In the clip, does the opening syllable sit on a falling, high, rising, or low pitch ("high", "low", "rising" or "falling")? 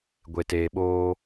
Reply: low